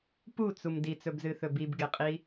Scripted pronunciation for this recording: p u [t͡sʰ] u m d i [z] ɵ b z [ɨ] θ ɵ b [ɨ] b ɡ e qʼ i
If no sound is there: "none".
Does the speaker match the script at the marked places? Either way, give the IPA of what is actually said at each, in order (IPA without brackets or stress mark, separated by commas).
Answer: t͡s, t͡s, ɨ, i